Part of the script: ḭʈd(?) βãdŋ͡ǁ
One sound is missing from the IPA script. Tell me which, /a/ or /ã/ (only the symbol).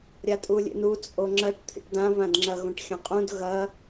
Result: ã